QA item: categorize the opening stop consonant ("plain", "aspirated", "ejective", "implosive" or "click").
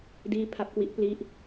plain